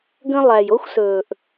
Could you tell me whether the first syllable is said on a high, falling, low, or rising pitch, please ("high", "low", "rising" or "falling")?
high